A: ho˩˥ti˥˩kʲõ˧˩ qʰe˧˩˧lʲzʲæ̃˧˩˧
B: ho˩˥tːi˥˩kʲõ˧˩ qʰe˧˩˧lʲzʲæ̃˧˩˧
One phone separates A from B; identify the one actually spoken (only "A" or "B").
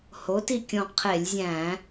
A